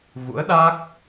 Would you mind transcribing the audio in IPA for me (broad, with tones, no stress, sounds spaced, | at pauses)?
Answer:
v ṵ˧˥ ə̯ ɗ a˦˥ k̚